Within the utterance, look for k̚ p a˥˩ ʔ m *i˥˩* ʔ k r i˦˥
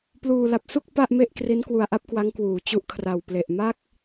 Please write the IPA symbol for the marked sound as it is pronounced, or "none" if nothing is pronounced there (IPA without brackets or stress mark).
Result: e˥˩